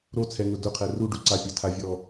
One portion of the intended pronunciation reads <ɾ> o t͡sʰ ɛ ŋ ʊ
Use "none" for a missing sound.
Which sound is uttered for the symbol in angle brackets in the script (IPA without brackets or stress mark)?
ɾ